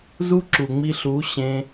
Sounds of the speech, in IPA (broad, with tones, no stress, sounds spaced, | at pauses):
z u˦ ǁ u˨ ŋ͡m i˧ ɬ u˨˦ ɕ ẽ˧